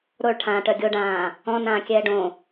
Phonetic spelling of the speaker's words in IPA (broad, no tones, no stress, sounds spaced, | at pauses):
ɾ o ɭ ʈʰ ãː ʈ œ ɡʲ o ɖ ãː | ɔ̃ n ãː kʲ ɛː ɖ õ